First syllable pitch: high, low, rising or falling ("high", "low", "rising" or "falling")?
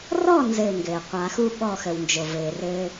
falling